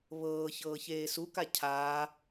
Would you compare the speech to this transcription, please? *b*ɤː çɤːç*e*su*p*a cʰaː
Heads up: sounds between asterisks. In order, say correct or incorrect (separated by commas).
incorrect, incorrect, incorrect